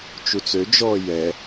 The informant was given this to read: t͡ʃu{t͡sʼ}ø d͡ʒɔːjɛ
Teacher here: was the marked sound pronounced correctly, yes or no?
no